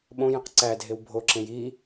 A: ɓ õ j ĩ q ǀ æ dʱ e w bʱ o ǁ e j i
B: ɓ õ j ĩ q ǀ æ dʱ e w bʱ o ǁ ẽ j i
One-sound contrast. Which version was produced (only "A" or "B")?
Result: B